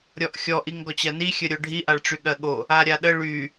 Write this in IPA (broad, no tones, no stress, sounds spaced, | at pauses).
ɾʲ ɔ ʔ xʲ ɔ ʔ i ŋ ɡ ɔ t͡ɕ ɜ n i xʲ ə ɾʲ o ɖʱ i ʔ a ɭ ʈ͡ʂ y ɠ ɜ ɠ o | a ɾʲ a ɗ ə ɭ y